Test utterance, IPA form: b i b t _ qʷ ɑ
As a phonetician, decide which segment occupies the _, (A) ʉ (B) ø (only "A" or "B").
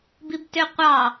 B